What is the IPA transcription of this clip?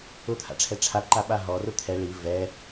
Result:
ʊ t̪ʰ a̰ ʈ͡ʂʰ ɛ ʈ͡ʂʰ a ǃ a ɓ a ɦ ɔ r ʊ t̪ʰ ɛ ɭ i v ɛ

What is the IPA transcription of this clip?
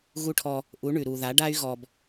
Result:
ɣ u˧ ʈʰ ɔ˧ | ʔ u˨˦ ɳ ʉ˨ ɾ u˨ ð a˨˦ ɖ a˦ y̯ ɣ ɔ˧ b

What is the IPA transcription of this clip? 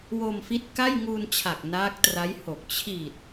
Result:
w o˧ m f i˦˥ t̚ k a˥˩ j ŋ u˧ n t͡ɕʰ a˨˩ k̚ n aː˦˥ k̚ t r a˦˥ j h o˨˩ k̚ t͡ɕʰ i˨˩ t̚

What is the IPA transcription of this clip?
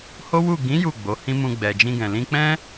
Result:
h o˦ w u˦˨ ɡ ĩ˨˦ j u˦˨ ɡ͡b o˨˦ h ĩ˦ m ũ˧ ɡ͡b ɛ˨ d͡ʒ ĩ˧ ɡ ɛ̃˨ l ĩ˧ k͡p ɛ̃˦

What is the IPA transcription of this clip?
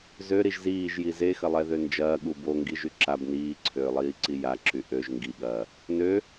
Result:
z ø ɾ i ʒ z iː ʒ j i z e x ɐ lˠ ɛ ð ø n d͡ʒ ɐː ɠ u b o ŋ ɡ i ʒ y ǁ a b n iː ǀʰ øː lˠ iː ǀ i j a ǁ y ʔ ø ʒ ŋ ɡ i ɠ ɐː | n ø

